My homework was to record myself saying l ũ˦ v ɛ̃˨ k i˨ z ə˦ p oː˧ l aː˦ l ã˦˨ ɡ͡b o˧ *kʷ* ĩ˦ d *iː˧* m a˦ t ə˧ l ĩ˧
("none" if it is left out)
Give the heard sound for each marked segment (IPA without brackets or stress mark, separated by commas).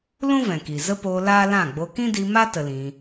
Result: k, i˧